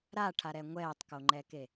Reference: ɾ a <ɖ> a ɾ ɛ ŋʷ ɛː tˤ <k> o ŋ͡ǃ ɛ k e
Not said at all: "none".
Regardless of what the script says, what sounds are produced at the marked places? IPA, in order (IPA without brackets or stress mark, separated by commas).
ʈʰ, k